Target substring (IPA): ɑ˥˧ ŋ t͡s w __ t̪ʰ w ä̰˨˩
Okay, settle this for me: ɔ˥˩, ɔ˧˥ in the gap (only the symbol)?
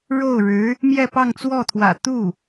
ɔ˥˩